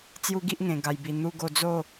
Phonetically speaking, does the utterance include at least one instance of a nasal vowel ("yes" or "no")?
yes